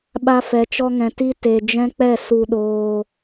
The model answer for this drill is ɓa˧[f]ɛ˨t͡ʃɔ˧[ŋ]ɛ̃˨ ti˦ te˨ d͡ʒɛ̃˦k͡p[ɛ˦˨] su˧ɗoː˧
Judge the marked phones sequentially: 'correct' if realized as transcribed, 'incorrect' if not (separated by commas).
correct, correct, correct